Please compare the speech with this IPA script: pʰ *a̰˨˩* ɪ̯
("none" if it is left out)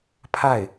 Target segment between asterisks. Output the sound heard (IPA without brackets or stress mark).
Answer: a˥˩